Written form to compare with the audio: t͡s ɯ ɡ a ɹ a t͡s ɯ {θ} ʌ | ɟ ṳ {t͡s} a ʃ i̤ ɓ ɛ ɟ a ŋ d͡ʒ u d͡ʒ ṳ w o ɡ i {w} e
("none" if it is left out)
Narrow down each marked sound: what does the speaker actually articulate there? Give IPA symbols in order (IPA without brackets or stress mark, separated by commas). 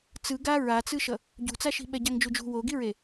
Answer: ʃ, t͡s, ɹ